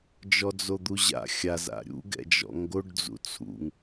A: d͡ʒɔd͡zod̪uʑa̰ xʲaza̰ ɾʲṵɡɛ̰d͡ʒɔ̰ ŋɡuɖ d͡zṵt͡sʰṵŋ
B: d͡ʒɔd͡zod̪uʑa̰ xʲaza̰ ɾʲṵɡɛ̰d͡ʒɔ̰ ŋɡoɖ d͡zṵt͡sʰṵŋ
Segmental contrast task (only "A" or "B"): B